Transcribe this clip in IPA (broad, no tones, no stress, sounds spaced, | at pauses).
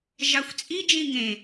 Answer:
ʒ ɑ xʷ t͡sʼ i d͡ʒ ĩ ŋ ẽ